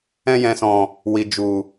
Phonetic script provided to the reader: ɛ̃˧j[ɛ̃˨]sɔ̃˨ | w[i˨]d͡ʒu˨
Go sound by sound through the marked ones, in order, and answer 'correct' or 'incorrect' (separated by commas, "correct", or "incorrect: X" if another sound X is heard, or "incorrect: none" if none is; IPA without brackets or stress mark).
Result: correct, correct